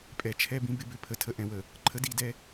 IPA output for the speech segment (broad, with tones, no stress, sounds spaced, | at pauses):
pʼ ɛ˨ t͡ʃʰ ɛ˦ b ĩ˦ b ɪ˦ b ʏ˨ pʰ ə˨ tʰ ə˨˦ ʔ ɛ̃˨ w ə˨ | ǃʰ ə˦ d i˦˨ d ɛ˦